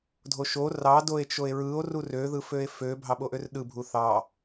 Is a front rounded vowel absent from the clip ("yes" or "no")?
no